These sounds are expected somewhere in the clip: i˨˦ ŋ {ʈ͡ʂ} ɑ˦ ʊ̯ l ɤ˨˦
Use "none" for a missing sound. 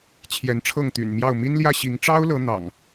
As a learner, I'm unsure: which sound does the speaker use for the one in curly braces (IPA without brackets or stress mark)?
ʈ͡ʂ